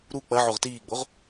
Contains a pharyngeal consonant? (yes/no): yes